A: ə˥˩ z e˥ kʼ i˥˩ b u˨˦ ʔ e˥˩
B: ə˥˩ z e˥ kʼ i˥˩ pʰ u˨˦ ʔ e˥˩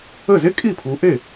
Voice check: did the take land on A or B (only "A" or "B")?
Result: B